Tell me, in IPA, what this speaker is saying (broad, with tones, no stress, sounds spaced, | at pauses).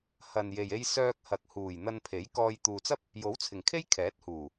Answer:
h ɐ˨ n j e˨ j e˧ j s œː˧ k̚ h ɐ˨ k̚ h uː˨˩ j n̪ ɐ˧ n pʰ e˨˥ j k ɔː˧ j t̪ uː˨ t͡s ɐ˥ p̚ | j o˨˥ w t͡sʰ ɪ˨˩ ŋ kʰ e˥ j kʰ ɛː˨˥ t̚ h uː˨˩